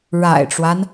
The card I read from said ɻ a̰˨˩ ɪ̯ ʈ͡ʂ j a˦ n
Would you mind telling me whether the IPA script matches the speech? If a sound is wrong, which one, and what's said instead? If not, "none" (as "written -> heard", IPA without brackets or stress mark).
j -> w